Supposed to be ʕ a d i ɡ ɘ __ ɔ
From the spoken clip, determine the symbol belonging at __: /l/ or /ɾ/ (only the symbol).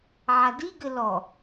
l